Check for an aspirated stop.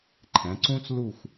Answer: present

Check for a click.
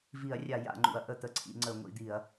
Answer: present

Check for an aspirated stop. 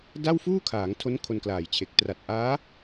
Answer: present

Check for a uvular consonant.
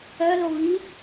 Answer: absent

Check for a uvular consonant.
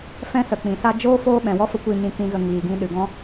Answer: absent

